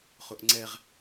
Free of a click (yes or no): no